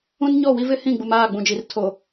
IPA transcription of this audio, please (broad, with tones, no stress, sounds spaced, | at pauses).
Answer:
ũ˦ n ɲ ɔ˦˨ w i˦ v ɪ˦ h ĩ˦˨ ɡ͡b u˨ m aː˦˨ ɡ͡b ũ˨ d͡ʒ i˨ r tʰ o˨